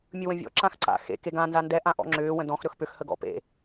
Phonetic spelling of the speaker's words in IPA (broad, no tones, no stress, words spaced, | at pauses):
mʲɯwə̃vʲɔ̰ ǁãxǀa̰ xḛ keɡã nzandɛ ʔãʔɔ̰ŋ͡ǁʏː wə̃dɔ̃x ɾɵxpʏx həɡɔ̰ pḛ